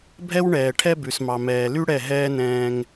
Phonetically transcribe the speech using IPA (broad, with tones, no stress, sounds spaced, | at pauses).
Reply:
bʱ ɛ˦ w ɳ ɛː˨ ʈʰ ɛ˦ b ʉ˨ s m ɑ˨ m ɛː˨ l y˦ ɽ ɛ˦˨ ɦ ɛː˦ n ɛ̃ː˧ ŋ